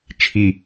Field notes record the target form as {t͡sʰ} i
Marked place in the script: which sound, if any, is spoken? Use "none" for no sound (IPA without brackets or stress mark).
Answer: t͡ʃʰ